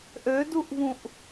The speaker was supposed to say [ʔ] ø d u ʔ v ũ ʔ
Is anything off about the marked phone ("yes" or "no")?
no